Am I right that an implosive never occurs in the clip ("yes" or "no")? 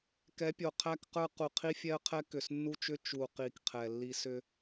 yes